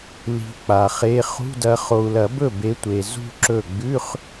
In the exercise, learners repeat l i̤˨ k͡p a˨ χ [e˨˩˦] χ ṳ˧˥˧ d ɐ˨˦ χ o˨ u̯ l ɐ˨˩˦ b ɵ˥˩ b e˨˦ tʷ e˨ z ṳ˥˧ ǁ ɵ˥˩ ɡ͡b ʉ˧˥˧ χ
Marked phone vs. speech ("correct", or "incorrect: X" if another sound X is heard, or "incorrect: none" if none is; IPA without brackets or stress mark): incorrect: e˧˥˧